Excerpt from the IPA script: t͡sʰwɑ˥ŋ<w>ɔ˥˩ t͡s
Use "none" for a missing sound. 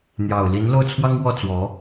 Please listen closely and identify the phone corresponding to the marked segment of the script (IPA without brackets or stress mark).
w